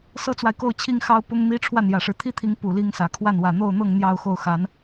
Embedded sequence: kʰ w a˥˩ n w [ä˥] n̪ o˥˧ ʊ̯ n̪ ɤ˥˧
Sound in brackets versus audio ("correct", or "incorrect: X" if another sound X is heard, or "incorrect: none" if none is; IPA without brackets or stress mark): incorrect: ä˨˩